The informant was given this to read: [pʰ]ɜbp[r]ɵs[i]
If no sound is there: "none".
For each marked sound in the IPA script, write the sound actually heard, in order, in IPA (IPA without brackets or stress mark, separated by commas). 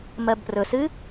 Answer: m, r, ɨ